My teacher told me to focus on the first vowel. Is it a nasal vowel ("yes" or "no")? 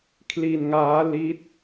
no